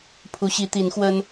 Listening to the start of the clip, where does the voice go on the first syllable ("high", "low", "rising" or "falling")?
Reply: rising